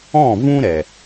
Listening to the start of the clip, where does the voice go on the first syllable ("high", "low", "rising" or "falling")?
falling